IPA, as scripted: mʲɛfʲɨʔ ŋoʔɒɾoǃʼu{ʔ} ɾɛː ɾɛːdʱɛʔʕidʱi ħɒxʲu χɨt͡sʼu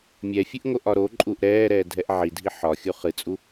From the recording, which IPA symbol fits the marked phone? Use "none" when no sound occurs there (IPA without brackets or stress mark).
ʔ